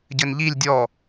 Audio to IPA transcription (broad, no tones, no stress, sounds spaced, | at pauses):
ɟ ɘ n ʎ i lʲ dʲ ɔ